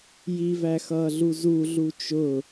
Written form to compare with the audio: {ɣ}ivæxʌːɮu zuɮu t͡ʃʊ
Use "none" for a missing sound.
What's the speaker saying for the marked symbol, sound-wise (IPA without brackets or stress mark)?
j